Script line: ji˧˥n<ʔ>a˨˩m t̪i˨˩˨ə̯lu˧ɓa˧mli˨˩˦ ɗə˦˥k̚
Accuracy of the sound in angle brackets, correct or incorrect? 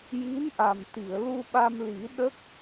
correct